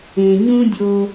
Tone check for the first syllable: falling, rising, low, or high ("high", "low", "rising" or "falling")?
low